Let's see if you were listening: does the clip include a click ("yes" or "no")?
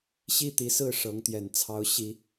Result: no